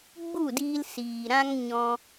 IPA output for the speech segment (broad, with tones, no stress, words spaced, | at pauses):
ɡ͡bu˦˨diː˧l siː˨ɾã˦ŋ ɲɔ̃˧